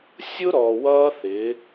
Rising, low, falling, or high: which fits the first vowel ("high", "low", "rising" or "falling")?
high